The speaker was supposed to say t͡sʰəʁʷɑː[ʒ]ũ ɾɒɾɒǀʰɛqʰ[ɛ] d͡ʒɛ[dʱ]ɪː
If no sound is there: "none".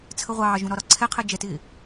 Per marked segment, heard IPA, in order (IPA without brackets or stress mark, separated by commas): ʒ, ɛ, t